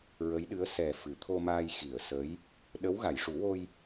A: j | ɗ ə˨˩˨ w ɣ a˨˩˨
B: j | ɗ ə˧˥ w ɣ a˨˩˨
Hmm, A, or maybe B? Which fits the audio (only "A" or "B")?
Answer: B